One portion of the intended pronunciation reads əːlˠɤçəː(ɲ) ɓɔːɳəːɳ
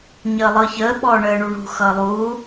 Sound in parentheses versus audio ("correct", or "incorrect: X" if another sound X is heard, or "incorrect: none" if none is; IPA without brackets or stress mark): incorrect: none